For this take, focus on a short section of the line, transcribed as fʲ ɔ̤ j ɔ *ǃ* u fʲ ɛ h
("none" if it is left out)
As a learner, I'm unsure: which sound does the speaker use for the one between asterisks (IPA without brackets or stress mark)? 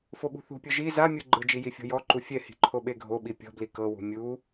ǃ